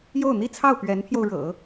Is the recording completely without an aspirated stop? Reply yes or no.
no